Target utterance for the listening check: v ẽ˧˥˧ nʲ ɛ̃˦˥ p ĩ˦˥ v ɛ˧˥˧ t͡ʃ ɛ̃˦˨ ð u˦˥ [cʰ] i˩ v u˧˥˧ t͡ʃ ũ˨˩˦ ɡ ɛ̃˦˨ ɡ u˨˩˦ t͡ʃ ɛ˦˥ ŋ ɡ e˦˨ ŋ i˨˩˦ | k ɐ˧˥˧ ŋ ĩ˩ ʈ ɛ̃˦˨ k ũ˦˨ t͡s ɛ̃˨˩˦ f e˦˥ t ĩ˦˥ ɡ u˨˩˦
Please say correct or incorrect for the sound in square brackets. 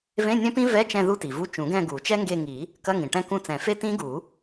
incorrect